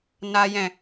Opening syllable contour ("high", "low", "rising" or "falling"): high